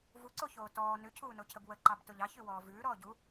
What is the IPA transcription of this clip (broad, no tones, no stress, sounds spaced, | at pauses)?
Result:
v u ǀ o ç oː t ɔː n ʉ cʰ uː n o cʰ ə b w ə ǃ ɑ b t o ʎ ɑ ç ʉ w ɔː v ʉː ɾ ɔː ɟ u